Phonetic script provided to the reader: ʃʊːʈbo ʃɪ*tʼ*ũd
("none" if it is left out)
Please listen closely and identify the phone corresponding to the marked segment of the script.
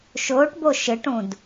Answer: ʈ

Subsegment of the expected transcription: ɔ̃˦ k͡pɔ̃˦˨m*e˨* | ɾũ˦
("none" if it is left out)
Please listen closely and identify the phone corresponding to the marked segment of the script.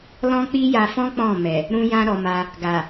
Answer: ɛ˨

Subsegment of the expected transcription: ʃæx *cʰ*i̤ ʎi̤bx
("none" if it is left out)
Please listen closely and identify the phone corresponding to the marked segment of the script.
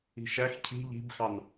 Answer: cʰ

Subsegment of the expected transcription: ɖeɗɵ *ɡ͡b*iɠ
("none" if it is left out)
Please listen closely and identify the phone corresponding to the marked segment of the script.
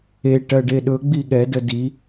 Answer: ɡ͡b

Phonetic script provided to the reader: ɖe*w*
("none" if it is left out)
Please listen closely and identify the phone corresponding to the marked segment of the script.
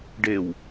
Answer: w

